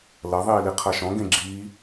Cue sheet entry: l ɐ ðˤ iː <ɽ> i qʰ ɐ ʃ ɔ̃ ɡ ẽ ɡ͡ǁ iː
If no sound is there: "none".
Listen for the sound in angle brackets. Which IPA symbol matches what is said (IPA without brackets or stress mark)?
l